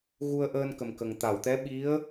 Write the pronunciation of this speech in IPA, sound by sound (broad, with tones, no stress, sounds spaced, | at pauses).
ɣ u˧ ə̯ ʔ əː˧ n k ə˨˩ m k ə˨˩ ŋ t̪ a˨˩˨ w t̪ ɛ˧˥ ɓ i˧˥ ə̯